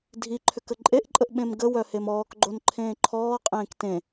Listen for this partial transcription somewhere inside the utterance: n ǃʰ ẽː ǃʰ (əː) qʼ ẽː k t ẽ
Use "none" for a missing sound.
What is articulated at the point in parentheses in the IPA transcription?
ɔː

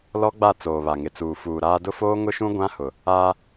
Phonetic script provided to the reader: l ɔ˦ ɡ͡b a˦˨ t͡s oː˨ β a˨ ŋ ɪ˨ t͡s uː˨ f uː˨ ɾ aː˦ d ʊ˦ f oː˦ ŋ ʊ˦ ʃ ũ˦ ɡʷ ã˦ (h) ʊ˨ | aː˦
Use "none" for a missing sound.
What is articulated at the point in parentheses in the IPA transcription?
h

